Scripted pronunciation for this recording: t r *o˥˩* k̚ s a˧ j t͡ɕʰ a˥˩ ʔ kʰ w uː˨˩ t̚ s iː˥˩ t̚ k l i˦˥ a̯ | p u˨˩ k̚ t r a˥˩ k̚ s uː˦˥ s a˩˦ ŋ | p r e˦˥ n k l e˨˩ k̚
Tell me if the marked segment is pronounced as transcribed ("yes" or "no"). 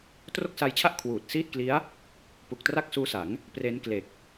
yes